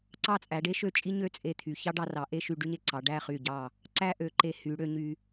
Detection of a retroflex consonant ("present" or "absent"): present